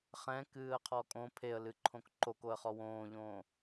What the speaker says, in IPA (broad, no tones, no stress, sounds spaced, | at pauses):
χ ɛ̃ k ɨː ə̯ qʰ ɔ kʼ õ pʰ e ə̯ l ɨ ǃʰ õ k ǃ o k o ə̯ χ ɔ w õː ʎ õː